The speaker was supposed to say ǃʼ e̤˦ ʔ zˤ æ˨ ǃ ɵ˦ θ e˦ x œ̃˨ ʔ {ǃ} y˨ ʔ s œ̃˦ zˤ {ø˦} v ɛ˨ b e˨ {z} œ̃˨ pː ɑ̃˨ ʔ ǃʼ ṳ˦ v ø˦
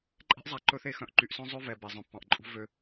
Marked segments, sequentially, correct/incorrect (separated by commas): correct, correct, incorrect